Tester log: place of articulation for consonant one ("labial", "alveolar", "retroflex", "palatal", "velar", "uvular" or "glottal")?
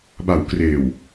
labial